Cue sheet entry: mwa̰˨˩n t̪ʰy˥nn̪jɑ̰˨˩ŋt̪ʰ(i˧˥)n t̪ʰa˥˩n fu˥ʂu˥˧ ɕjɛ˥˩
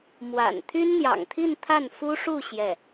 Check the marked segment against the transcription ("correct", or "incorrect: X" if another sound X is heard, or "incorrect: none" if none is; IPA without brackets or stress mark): incorrect: i˥˧